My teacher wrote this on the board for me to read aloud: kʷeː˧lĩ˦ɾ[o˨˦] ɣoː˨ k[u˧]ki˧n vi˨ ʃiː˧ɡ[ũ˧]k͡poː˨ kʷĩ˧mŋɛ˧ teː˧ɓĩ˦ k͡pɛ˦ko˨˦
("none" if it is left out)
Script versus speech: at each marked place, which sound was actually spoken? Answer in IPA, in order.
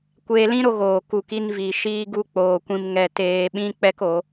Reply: o˧, u˨, u˧

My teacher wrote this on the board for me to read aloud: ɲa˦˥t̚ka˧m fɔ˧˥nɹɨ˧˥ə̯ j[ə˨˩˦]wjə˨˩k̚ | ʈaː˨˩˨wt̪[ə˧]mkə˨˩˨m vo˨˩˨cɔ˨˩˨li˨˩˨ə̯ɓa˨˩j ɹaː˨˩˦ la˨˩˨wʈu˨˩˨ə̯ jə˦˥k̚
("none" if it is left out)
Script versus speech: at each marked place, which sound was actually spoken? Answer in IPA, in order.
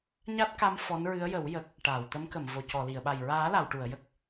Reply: ə˨˩˦, ə˧˥

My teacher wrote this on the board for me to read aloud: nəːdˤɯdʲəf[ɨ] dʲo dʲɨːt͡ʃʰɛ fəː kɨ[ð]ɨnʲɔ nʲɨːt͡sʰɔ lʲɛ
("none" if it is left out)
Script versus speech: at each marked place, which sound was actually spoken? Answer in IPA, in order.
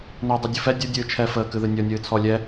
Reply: ɛ, ð

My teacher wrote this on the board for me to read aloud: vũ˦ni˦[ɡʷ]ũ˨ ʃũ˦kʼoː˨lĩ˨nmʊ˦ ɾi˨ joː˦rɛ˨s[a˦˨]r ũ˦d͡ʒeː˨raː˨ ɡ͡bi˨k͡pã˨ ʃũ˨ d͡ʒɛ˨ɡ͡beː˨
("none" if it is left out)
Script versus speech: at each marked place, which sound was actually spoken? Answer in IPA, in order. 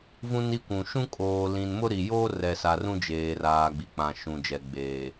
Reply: kʷ, a˨

